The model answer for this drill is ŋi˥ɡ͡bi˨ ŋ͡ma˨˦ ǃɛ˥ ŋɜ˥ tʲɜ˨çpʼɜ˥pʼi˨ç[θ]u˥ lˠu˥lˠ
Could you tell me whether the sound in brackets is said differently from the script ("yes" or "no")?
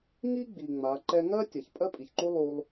yes